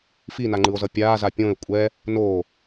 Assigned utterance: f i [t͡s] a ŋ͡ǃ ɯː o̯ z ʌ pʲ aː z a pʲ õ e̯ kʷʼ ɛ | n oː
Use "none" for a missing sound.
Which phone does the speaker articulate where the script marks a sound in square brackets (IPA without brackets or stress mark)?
n